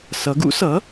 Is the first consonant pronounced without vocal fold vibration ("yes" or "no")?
yes